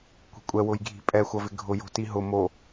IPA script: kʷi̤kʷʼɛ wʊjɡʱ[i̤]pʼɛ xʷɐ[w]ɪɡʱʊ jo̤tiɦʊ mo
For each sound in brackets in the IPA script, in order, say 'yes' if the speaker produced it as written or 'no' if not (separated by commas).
yes, no